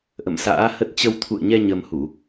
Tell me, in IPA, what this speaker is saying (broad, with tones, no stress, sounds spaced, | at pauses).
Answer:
ʔ ə̰˧˨ m s a̰ː˧˥ h ə˦˥ t̚ t͡ɕ ə˧ w t̪ʰ ṵ˧˨ ə̯ ɲ ɛ˧ ɲ ə˧ m h u˧˩˨